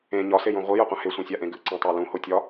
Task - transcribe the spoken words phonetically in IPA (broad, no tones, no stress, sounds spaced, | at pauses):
ẽ ɲ ɒ s e j õ ʁʷ i j a qʷ ã h e sʷ ẽ sʲ a ʔ ẽ ɡ ɨ ǀ ẽ tˤ a l ũ h o tʲ ɒ